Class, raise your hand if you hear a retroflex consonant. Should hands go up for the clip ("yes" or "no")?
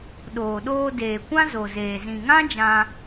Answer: no